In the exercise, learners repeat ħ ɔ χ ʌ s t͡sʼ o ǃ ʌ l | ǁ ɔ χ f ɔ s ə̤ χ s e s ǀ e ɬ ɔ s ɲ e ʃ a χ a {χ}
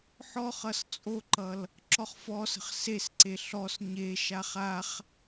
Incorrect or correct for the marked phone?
correct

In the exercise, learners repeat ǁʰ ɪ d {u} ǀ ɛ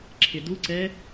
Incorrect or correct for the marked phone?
correct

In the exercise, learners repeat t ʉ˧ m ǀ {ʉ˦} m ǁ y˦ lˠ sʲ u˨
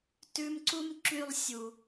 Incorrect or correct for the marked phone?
incorrect: u˦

